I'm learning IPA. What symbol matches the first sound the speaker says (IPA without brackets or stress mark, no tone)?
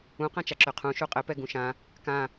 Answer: ũ